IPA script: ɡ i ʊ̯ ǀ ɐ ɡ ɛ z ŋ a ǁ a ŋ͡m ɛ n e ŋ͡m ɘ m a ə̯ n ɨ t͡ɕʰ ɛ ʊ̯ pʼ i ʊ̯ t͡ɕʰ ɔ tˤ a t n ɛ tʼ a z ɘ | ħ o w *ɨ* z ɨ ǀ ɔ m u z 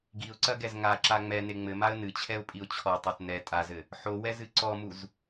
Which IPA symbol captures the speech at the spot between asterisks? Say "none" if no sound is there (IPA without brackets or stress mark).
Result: ɛ